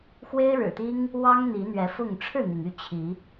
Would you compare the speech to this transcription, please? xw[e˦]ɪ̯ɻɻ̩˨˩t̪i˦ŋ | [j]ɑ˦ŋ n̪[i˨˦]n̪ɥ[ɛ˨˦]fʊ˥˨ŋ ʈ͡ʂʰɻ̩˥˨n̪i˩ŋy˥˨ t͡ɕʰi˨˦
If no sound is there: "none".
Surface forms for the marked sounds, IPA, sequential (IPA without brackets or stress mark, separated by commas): e˦, w, i˨˦, ɛ˨˦